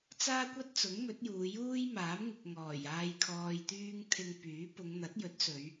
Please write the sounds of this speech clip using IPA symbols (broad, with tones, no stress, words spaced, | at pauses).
t͡saː˥kʷɐ˥t̚t͡sʊ˨˥ŋ mɵ˨˥t̚juː˨˧ juː˥jmaː˨˥m ŋɪ˨k̚ŋɔː˨˩j aː˧jkʰɔː˧jt̪yː˥ŋ t̪ʰɪ˧ŋ pyː˨˥ pʊ˨˧ŋ n̪ɐ˨˥t̚jɵ˨˥t̚sɵ˨˧ɥ